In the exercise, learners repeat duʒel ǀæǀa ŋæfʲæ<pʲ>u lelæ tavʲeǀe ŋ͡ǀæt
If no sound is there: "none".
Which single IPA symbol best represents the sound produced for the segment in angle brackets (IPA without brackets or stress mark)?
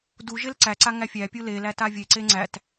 pʲ